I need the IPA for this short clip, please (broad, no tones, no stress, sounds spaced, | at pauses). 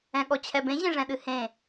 ɛ̃ ɠ ɔ t͡ɕʰ ɛ b ẽ ʑ ẽ ʐ ɛ̃ ɗ ɨ h ẽ